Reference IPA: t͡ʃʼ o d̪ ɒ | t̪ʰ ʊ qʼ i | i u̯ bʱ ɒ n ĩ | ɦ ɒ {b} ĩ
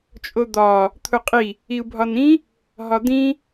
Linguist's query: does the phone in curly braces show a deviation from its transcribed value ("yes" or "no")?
yes